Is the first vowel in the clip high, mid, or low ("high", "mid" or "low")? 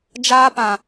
low